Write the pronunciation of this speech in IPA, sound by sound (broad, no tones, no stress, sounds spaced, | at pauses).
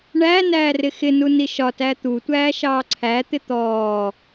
ɳ æ n æː r ɪ x ɪ n u n i ʃ ɒ t æ t̪ u tʷ æː ʃ ɑː ǀʰ æ t̪ ɪ t̪ ɔː